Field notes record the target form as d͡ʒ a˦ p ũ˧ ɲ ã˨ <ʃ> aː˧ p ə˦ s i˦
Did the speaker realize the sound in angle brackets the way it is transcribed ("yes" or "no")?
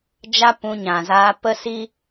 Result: no